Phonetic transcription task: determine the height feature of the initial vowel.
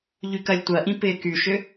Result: high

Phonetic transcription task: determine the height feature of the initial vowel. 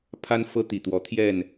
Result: low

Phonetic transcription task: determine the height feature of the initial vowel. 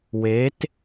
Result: mid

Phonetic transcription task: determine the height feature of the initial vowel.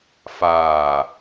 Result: low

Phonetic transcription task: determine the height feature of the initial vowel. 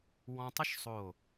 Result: mid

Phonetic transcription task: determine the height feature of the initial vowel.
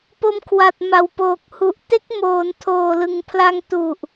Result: mid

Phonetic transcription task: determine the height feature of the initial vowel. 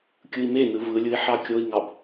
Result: high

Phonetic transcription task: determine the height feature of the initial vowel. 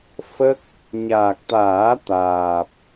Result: mid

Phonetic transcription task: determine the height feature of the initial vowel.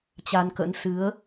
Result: low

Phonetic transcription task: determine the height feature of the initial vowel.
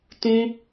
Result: high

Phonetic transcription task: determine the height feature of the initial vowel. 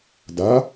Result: low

